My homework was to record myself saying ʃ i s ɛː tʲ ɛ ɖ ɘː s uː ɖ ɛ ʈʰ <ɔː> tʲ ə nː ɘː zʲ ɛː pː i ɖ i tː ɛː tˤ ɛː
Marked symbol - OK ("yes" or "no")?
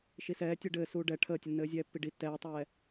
no